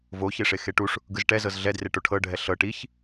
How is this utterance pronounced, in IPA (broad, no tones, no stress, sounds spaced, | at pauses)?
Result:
v o ç e ʂ e x e ʈ u ʂ | ɡ ɯ z ʈ ɛ z ɤ z ɮ ɛ d r e ʈ o ʈʰ ɤ ɖʱ ɛ ɬ ɤ ʈ i ç